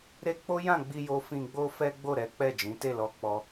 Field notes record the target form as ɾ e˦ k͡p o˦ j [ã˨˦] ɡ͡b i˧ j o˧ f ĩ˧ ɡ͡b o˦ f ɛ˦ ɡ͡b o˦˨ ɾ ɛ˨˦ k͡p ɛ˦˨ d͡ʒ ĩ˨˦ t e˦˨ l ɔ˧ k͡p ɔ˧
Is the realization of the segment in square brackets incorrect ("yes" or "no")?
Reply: yes